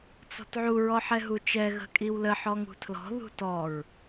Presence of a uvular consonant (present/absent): absent